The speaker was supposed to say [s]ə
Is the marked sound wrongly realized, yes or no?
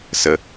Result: no